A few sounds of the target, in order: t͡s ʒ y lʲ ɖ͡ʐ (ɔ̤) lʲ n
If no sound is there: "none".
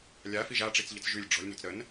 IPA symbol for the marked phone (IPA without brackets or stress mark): ɔ̤